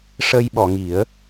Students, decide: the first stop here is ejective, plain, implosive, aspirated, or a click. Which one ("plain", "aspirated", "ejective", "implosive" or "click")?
implosive